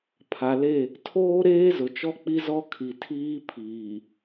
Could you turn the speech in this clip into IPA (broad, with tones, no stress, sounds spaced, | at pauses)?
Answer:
pʰ a˨ l e˦˨ | tʰ oː˦ ɾ eː˦ z ʊ˨ t͡ʃ ɔ˦ k͡p i˦ z ɔ˦ kʰ i˨ tʰ iː˦ pʰ iː˨